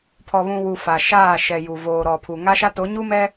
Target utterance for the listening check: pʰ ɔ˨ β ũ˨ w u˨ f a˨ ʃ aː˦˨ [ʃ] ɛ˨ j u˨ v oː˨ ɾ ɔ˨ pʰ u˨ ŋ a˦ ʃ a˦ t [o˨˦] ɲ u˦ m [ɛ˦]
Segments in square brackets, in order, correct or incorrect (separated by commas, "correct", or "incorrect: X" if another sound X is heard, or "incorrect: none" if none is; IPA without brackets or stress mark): correct, correct, correct